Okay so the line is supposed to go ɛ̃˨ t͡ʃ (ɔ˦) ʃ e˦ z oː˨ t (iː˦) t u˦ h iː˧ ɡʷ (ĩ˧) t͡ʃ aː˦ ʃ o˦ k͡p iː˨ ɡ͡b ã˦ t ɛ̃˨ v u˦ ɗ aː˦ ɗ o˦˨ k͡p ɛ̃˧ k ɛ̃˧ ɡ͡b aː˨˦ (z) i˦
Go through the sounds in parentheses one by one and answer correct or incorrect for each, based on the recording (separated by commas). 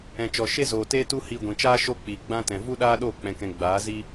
incorrect, incorrect, incorrect, correct